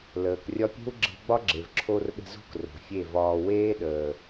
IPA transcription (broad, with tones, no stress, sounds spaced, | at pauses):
l əː˨ k rʲ ɒ˦ pʲ e̤˦ w ɡ͡ǁ e̤˧ ɡ͡b ɒ˦ ɡ͡ǁ e˨ v ǁʰ o˧ r ɗ ə̤˧ z o̤˦ k r o̤˨ fʲ e˦˨ v ɒː˧ w eː˦ ɗ əː˨